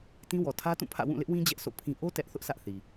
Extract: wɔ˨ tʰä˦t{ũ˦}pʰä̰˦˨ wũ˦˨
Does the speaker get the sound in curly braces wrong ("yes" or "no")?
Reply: yes